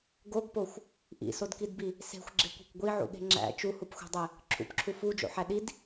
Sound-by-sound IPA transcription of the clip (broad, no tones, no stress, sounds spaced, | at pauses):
ɡ o ɡ p o xʷ | ʔ ḭ s o d k i d b i | s e̤ xʷ ɡ͡ǁ e kʷ e̤ kʷ ɡʷ i ʕ ṵ ɠ e̤ ŋ͡ǁ æ̰ t͡ʃ u h u p xʷ e̤ dˤ e | ǁʰ ṵ p ǁʰ u f u d͡ʒ o̰ ħ æ ɗ i d